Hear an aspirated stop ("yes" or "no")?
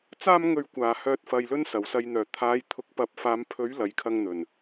yes